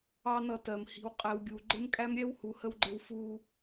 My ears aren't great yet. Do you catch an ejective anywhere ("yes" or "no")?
yes